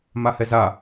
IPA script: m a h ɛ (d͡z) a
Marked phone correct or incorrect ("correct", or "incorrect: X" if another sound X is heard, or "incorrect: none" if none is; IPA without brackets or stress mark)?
incorrect: z